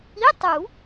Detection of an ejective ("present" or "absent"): absent